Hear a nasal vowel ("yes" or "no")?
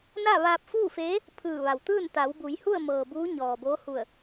no